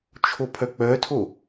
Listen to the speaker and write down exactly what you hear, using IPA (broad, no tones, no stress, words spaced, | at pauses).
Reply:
t͡ʃʰopʰœk͡pœtʰo